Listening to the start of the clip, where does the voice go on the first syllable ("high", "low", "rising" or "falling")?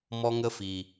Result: high